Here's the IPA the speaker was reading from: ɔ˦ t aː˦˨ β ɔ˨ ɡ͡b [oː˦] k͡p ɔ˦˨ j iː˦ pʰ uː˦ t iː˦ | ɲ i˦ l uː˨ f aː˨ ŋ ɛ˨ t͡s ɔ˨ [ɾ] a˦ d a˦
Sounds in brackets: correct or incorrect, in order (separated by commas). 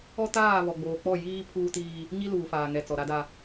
incorrect, correct